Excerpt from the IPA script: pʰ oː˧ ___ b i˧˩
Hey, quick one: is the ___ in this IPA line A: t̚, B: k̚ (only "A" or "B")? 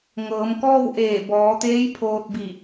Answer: A